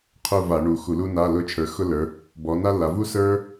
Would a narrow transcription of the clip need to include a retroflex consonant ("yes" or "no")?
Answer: yes